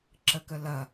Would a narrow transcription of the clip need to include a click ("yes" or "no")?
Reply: yes